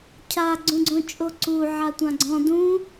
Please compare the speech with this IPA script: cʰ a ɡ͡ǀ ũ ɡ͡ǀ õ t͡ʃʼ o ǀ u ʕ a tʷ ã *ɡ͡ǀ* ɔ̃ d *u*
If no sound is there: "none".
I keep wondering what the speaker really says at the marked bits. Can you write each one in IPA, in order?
ɡ͡ǀ, ũ

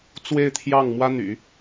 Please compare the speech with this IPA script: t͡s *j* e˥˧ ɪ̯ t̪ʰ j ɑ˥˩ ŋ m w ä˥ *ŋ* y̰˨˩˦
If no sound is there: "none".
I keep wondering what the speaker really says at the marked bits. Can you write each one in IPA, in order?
w, n̪

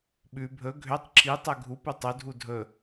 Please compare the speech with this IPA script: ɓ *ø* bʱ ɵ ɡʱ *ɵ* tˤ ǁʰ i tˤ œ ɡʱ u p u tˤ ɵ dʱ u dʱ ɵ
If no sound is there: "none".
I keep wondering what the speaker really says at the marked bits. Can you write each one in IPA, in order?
ʉ, ø

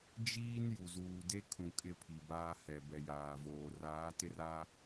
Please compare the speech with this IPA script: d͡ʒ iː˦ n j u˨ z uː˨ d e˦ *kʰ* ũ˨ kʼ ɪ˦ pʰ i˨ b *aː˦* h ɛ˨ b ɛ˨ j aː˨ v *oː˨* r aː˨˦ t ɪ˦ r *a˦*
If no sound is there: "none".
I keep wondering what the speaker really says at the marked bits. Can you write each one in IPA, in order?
kʰ, aː˦, oː˨, a˦

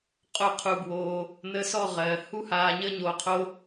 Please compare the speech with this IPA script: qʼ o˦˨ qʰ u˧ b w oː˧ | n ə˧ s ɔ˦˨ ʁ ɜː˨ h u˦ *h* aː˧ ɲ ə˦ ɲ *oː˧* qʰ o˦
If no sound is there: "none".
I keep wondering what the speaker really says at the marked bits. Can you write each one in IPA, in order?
h, o˧

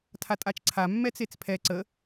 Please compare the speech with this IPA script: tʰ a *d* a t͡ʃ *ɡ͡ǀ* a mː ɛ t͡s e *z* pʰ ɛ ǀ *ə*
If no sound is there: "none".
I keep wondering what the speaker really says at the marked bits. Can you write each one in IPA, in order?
tʼ, ǀʰ, t͡s, ə

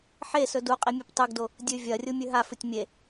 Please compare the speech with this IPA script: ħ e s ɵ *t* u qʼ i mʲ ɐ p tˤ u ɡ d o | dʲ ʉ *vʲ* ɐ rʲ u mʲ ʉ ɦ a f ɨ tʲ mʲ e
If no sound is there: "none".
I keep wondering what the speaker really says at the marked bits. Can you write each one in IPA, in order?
d, vʲ

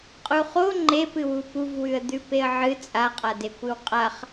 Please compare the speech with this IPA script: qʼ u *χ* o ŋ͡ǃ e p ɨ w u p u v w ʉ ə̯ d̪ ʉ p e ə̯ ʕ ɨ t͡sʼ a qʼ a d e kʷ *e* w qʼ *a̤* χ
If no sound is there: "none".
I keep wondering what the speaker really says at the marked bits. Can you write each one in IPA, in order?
χ, ɨ, a

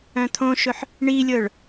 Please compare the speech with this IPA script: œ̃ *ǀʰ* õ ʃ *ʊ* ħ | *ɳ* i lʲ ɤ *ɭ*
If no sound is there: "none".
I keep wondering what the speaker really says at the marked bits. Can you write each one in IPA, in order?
t̪ʰ, ɵ, ɳ, ɭ

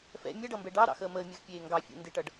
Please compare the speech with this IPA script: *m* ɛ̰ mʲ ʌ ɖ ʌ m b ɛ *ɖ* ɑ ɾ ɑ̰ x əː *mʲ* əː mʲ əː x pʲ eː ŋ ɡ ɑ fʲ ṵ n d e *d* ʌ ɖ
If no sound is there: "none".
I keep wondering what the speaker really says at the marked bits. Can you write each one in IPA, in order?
f, ɖ, m, ʈ

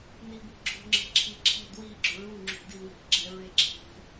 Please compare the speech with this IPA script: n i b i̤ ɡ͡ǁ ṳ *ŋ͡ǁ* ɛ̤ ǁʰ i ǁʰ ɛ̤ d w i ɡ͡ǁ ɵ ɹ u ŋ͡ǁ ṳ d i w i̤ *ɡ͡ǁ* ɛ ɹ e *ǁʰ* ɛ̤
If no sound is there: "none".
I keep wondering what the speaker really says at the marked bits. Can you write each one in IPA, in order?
ŋ͡ǁ, ɡ͡ǁ, ǁʰ

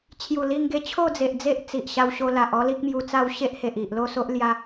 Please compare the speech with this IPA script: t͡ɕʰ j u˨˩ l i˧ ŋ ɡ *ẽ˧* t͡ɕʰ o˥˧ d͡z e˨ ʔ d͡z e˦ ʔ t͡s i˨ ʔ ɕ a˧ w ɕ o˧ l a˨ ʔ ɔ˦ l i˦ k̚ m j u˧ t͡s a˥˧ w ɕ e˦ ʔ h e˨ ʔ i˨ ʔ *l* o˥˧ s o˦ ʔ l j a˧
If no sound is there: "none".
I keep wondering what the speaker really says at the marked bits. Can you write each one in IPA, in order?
e˧, l

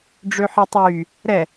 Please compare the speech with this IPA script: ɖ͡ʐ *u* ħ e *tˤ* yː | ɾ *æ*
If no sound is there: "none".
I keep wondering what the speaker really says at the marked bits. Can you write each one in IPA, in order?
ø, tˤ, ɛ

